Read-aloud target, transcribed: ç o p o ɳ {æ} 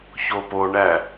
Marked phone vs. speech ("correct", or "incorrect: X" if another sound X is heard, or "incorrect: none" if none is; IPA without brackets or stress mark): correct